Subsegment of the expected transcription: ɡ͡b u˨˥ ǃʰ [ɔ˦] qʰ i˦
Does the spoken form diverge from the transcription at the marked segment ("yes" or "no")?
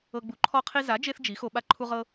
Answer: no